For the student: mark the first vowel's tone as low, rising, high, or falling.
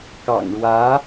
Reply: low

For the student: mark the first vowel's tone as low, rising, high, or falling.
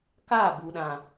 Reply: falling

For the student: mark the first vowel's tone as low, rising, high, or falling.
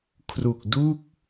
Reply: low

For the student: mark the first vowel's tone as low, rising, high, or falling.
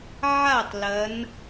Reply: falling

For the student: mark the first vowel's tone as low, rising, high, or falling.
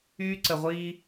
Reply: high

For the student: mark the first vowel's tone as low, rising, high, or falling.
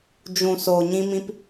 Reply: low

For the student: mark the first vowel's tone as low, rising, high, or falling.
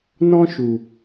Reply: high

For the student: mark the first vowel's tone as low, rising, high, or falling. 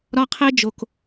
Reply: high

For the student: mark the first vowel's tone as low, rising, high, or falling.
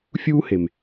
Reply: high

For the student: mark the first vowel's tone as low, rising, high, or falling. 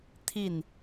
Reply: falling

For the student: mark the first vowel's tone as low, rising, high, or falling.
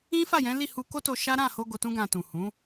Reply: high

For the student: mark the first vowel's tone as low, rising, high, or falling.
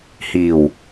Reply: low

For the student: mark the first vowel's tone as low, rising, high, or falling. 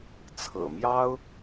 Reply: low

